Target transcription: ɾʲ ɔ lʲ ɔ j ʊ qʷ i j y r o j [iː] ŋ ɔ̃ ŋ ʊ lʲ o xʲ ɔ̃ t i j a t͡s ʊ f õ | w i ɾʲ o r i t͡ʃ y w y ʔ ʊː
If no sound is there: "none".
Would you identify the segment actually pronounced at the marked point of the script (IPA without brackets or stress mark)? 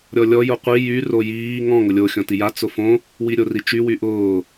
iː